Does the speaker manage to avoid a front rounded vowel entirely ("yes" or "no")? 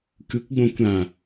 yes